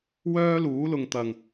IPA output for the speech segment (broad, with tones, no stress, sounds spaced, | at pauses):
w œː˥ l uː˨˥ l ʊ˨ ŋ t̪ ɐ˨ ŋ